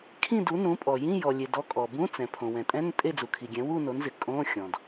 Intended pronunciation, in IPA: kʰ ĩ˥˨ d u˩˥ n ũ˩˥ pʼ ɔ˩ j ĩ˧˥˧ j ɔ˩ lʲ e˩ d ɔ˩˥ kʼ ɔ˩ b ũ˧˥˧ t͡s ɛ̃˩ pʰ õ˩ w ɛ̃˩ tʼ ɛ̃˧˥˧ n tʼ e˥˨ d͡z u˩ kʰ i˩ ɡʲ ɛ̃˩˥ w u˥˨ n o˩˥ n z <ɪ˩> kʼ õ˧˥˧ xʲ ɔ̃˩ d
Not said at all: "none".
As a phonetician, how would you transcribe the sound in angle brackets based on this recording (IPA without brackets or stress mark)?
ɪ˩